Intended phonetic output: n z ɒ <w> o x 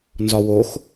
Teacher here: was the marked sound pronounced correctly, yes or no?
yes